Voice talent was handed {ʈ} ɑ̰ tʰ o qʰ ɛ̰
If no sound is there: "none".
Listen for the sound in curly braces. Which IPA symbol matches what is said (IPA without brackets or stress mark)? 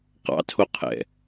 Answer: q